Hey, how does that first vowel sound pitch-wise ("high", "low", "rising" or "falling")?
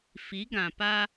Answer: rising